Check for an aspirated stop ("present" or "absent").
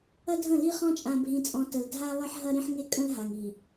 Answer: absent